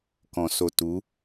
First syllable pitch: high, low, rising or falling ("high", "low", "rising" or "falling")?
low